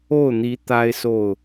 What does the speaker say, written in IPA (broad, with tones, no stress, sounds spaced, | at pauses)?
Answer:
o˥˩ ʊ̯ n̪ i˧˥ t̪ a˥ ɪ̯ s o˥˩ ʊ̯